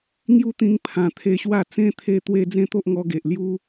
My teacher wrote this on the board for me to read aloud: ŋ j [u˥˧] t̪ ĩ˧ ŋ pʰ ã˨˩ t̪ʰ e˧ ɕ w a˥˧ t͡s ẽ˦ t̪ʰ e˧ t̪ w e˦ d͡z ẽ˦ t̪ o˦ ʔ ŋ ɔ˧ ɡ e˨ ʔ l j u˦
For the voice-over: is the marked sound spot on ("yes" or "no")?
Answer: no